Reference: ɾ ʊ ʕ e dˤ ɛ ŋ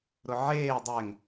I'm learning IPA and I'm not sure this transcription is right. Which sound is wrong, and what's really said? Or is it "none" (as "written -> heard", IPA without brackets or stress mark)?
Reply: e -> eː